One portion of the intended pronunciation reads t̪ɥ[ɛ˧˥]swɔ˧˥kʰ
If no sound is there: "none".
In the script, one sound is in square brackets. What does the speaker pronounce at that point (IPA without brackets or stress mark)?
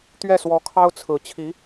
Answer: ɛ˥˩